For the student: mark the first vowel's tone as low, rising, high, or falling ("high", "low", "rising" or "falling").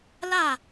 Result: falling